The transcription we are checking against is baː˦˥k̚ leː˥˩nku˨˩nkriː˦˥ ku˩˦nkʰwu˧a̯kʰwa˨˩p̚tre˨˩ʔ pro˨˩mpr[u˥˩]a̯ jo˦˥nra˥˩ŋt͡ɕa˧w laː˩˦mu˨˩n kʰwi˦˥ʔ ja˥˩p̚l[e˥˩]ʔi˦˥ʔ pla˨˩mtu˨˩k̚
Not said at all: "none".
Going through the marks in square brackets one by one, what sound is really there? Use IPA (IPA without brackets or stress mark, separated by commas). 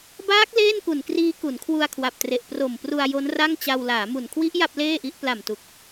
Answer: u˧, eː˥˩